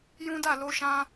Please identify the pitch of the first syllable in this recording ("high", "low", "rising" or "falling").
high